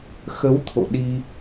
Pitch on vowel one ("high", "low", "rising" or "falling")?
rising